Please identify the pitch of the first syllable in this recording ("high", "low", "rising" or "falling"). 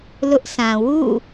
high